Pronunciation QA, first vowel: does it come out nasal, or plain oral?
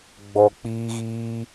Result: oral